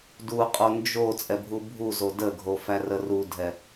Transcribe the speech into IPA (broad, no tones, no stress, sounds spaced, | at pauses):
d u qʼ o n d͡ʒ o t͡sʼ ɛ bʱ u bʱ u z o d ə ɡʱ o f æ r ə r u dʱ ɛ